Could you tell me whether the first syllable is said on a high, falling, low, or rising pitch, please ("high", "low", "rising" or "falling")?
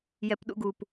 low